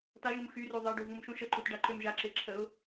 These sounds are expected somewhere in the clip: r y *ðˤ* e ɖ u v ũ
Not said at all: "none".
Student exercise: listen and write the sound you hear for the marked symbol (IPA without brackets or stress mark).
ðˤ